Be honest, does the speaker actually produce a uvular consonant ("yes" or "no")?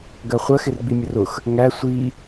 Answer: yes